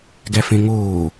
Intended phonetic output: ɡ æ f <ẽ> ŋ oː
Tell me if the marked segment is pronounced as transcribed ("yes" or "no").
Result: yes